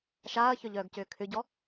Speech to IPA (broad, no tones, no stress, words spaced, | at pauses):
ʃaːɐ̯çœʎœːɡcʏː kʰʏɟɔ